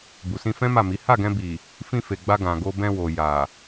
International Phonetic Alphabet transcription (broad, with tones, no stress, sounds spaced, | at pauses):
b u˨ s ĩ˧ f ɛ̃˦ m a˦˨ m i˨˦ h a˦˨ ɡ ɛ̃˧ b i˨ | f ĩ˧ f e˨ ɡ͡b a˧ ɡ ã˨ ɡ o˧ b ɛ̃˧ w o˨ j a˨